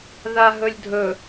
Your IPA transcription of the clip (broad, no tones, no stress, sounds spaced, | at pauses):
ð a ɦ ɵ lʲ dʱ ɵ